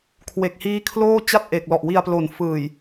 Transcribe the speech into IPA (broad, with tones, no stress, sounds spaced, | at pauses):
kʰ w e˨˩ k̚ h iː˦˥ kʰ l oː˥˩ t͡ɕ a˥˩ t̚ ʔ e˨˩ k̚ l ɔ˨˩ ʔ w i˧ a̯ p l o˨˩ n f ɯː˨˩ j